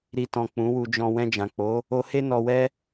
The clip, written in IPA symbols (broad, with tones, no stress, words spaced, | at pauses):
ɾi˨tɔ̃˨ k͡pũ˨˦wu˧ d͡ʒɔ̃˧ wɛ̃˧d͡ʒã˨k͡po˨˦ | o˧he˦ nɔ˧wɛ˦